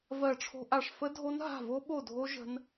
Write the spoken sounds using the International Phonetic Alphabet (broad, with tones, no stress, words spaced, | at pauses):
vɜ˦˨ʈ͡ʂʰo̤˦˥ʔa˦˨ʂ fə˦˥dʱo˦˥n ɦa̤˦˨vo˦˥ɓo˦˨ dʱo˦˥ ʒə̤˦˥n